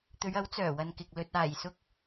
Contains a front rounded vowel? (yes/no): yes